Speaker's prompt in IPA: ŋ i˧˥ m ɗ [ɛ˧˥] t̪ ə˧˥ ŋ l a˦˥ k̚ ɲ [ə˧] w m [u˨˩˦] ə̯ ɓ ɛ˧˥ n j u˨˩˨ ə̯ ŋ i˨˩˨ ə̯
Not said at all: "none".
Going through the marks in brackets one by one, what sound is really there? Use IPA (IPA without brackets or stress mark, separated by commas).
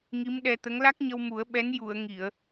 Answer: ɛ˧, ə˧, u˨˩˦